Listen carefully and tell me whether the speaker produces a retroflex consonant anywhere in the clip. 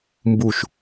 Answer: no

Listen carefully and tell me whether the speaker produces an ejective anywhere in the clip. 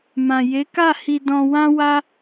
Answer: no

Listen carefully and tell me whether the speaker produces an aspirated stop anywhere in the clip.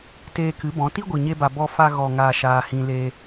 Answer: no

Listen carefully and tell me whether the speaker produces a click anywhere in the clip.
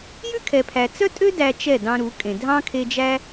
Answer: no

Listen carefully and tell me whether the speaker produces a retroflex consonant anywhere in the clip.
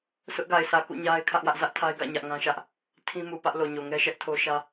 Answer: no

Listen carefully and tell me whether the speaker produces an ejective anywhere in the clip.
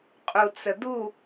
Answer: yes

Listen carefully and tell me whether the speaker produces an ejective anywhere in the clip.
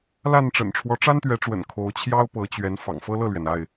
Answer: no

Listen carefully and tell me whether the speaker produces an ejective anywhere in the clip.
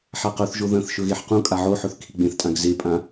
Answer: yes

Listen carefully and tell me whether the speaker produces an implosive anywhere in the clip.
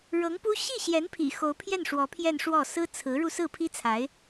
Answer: no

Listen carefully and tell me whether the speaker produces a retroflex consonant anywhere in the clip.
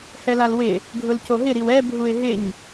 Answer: no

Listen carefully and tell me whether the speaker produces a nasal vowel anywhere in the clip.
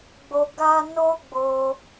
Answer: no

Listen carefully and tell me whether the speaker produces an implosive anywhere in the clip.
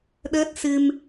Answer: yes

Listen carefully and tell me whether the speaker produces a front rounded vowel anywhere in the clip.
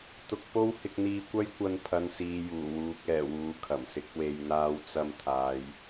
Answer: no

